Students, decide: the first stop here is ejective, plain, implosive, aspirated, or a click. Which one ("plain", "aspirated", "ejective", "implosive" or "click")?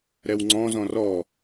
click